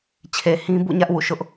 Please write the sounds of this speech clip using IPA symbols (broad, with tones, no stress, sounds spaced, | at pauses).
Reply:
t͡ɕʰ e˨ h ĩ˦ b ṵ˦˨ ɲ ä˦ ʔ w ṵ˦˨ ʃ ʊ˦ ʔ